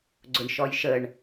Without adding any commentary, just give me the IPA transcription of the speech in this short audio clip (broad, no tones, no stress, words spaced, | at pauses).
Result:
ɡ͡ǀʊɳʃɔjʃəɳ